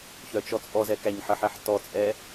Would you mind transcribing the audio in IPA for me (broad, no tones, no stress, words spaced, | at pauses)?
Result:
çœt͡ʃɔt͡sʼɔzɛ kæɲħəħɛħ tɔt͡sʼɛ